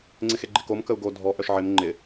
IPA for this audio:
ŋ͡ǀ ɪ x e ɡ͡ǃ ɪ k o m k ə u̯ ɡ o dʱ ɔ ʔ œ ʃ ʕ ɪ m ŋ͡ǃ ɪ

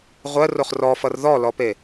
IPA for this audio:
ʁʷ ɜ r o χ r ɔ f ʌ r ð ɔ l ɔ p e

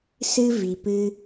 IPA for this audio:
s ɨ˦ v i˨ p ɨ˧

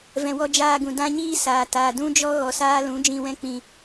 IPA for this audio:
v ɛ̃˨ w ɔ˧ d͡ʒ aː˧ ɡ ũ˨ d ã˦ ɲ iː˦ s aː˨ t aː˨ d ũ˦ d͡ʒ ɔ˦ ɣ ɔ˨ s aː˦ l ũ˨˦ d͡ʒ ĩ˨ w ɛ̃˧ k͡p ĩ˨

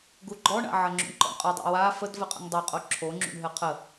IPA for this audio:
ɡ u ɡ͡ǃ ɔ ɳ a̰ ʕ ɐ ŋ͡ǁ ṵ ɳ ǃ ɔ̰ ɳ qʼ ɤ dˤ ḛ w a f ə d v ɘ qʼ ə̰ ŋ dˤ o qʼ o ǁʰ o ŋ͡ǁ ṵ ɳ ɦ ɘ qʰ ə

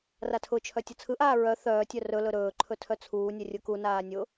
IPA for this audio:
r a tʰ ʊ t͡ʃʰ œ tʲ ʊ t͡sʰ ɯ ʔ aː ɹ œ θ œː tʲ œ r ɵ l ɵ ɾ ɵː ǃʰ ɵ tʰ œ t͡sʰ uː nʲ ɛ rʲ ʊ k u n aː nʲ ʊ

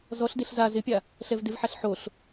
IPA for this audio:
z ɔ ɬ d e ɬ z a z ɪ pʲ a | ɬ ɛ v d ɪ v ħ a ɬ ħ o ɬ

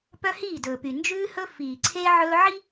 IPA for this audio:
p œ˦ h iː˦˨ d ɵː˨ p y˨ n d͡ʒ ʉː˦ h ɵ˦ f iː˨ ǀʰ e˦ ʕ ɵː˦ ʕ i˦

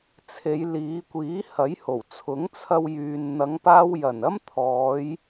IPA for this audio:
t͡sʰ e˨˧ j l iː˨˧ kʷ iː˨˥ h ɐ˨˥ j h o˨˩ w t͡sʰ ʊ˨˥ ŋ t͡sʰ ɐ˧ w j yː˨ n n̪ ɐ˨˧ ŋ p aː˧ w j ɐ˨˩ n ɐ˥ m t̪ʰ ɔː˨˧ j

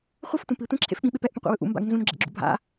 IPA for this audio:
χʷ ɯ f tʷ ɛ̃ p i tʷ ẽ ǁʰ ḛ f ɓ ĩ ɓ e p ɛ ʔ p ũ qʷ ḛ w ɯ ʔ ṵ m b a̰ ɡ n z ũ n ɡ͡ǁ ḛ ɡ͡ǁ ṵ bʱ a̰

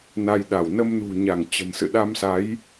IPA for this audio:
n a˧ j ɗ a˧˩ w n ə˧ m n ṳ˨˩ ɲ a˧˩ ŋ t͡ɕ ə̤˨˩ n s ɨ̰˧˨ ɗ a˧ m s a˨˦ j

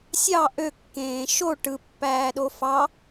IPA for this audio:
sʲ ɑ ʔ ø kː ẽː ʃ o ʈ ɯ pː æː ɗ o f ɑ

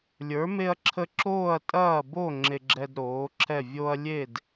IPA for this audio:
lʲ ə˞˨˥ m e˦ ɐ̯ ǁʰ ə˦ ǁ oː˥˨ ɐ̯ tʼ ɐː˥˨ b o˥˨ ŋ͡ǁ e˦ ɡ͡ǁ ɛ˦ d ɾ oː˨˥ ǁʰ ɛ˥˨ vʲ o˦ ɐ̯ lʲ e˥˨ d

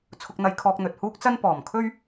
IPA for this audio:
t͡sʰ ʊ˧ k̚ n̪ ɐ˧ j kʰ ɔː˧ k̚ n̪ ɵ˨ t̚ h uː˥ k̚ t͡s ɐ˥ n p ɔː˨˩ m kʰ ɵ˥ ɥ

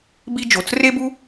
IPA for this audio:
b i˥ d͡ʒ o˩ t͡s r e˦ b u˦

